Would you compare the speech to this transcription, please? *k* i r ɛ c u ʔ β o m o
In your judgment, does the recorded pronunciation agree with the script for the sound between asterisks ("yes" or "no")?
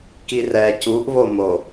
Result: yes